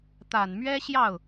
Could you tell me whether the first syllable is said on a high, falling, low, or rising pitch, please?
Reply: low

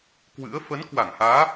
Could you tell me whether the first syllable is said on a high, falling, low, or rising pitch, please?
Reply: rising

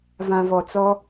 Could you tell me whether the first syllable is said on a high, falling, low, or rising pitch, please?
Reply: low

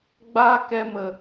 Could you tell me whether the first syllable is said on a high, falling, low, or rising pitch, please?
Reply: high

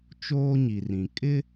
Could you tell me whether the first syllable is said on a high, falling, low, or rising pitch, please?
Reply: high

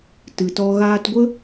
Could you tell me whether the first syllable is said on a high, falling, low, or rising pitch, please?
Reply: low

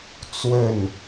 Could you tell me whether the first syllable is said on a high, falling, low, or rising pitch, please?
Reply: falling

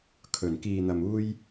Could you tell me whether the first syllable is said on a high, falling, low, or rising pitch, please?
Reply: low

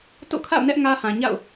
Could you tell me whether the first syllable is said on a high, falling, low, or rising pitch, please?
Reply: falling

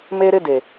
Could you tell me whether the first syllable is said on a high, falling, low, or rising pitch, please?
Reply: high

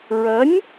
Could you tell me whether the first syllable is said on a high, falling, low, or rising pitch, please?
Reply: rising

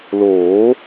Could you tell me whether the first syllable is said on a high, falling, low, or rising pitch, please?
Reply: rising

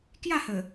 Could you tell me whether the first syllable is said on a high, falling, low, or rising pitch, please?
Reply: falling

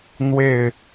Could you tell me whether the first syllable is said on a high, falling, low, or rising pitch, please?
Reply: falling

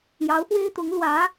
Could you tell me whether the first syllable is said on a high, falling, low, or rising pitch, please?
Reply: rising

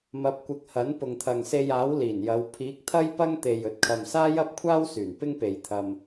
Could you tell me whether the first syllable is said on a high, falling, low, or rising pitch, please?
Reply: rising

